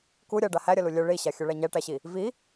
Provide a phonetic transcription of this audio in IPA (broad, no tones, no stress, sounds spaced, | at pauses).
k u ɾʲ ɐ ɖ a h æ ɾʲ ɐ l u lʲ œ ɭ i ɕ a xʲ œ ɭ æ ɲ æ ʈ æ ɕ i | v i